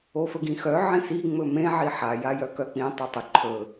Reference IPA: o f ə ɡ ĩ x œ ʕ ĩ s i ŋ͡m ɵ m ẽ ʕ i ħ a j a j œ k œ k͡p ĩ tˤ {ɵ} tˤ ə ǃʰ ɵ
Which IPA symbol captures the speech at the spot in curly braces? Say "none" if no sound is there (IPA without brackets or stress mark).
œ